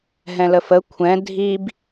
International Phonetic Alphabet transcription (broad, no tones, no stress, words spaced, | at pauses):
ɦɛ̃ləfə kʷʰɛ̃ dʱib